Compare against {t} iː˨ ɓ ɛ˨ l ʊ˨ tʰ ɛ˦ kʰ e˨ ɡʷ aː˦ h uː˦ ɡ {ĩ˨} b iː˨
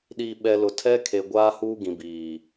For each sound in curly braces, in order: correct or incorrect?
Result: incorrect, correct

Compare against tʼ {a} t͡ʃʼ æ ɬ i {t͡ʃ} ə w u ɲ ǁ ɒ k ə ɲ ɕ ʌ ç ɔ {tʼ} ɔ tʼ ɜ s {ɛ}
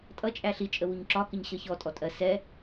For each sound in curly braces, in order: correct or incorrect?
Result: incorrect, incorrect, correct, correct

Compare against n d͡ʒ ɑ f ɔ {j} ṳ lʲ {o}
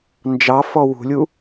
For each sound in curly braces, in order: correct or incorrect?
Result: incorrect, incorrect

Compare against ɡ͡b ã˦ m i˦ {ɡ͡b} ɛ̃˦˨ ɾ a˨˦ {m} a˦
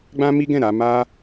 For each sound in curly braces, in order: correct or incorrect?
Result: incorrect, correct

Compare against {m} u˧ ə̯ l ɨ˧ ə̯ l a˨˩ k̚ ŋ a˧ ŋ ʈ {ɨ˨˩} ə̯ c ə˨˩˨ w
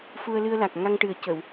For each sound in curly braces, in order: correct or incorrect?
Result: incorrect, correct

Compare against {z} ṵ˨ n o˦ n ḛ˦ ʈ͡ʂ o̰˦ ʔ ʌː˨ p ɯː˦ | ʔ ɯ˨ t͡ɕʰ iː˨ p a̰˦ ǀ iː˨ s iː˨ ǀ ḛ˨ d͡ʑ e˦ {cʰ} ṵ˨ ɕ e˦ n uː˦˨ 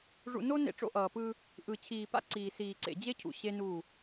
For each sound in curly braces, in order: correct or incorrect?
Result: incorrect, correct

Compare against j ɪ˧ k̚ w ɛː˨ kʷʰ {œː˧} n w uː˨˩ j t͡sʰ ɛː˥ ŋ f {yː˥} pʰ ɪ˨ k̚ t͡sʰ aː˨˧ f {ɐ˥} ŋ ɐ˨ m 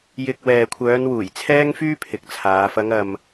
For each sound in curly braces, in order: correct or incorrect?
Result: incorrect, correct, incorrect

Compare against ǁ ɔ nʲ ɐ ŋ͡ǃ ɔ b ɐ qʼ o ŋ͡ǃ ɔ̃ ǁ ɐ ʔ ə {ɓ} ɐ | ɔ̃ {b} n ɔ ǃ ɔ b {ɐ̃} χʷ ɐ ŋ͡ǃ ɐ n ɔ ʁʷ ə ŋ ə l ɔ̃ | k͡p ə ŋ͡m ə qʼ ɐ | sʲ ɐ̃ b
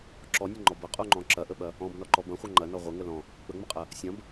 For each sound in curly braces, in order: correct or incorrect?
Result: correct, correct, correct

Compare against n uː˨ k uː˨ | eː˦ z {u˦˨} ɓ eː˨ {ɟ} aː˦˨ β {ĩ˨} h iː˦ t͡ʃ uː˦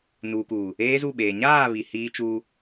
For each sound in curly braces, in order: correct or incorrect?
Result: correct, incorrect, incorrect

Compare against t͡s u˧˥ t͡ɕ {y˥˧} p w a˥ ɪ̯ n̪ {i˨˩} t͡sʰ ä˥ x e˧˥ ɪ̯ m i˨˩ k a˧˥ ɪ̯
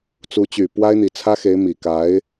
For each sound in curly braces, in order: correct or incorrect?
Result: incorrect, correct

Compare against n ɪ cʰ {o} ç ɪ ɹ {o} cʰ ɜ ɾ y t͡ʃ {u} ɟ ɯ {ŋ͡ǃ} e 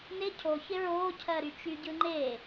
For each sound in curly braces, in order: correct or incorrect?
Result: correct, incorrect, incorrect, correct

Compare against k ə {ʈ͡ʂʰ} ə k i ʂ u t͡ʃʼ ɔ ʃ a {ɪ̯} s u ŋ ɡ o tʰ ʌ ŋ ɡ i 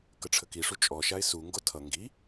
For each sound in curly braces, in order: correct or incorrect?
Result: correct, correct

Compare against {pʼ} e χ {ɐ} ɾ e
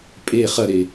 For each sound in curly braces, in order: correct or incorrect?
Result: correct, correct

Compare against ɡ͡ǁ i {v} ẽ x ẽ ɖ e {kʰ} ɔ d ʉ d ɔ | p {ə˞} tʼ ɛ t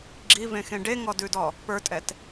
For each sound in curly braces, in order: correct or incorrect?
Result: correct, incorrect, correct

